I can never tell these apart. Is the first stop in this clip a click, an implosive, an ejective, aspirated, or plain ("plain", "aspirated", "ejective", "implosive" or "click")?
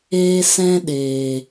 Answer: implosive